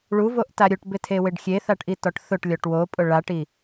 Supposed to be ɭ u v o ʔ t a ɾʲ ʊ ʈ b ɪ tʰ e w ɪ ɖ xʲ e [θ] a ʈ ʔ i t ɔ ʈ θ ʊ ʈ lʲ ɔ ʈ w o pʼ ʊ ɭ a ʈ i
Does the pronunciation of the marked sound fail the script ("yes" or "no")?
no